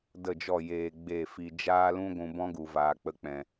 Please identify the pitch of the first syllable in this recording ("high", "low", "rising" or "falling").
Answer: falling